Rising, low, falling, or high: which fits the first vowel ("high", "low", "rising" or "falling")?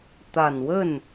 low